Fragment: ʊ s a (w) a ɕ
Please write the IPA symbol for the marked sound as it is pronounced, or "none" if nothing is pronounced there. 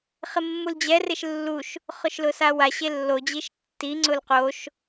w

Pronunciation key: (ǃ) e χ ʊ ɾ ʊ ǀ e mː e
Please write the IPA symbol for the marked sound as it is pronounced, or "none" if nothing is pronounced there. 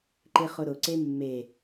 ǃ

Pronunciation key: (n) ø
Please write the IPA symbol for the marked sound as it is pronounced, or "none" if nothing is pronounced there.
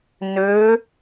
n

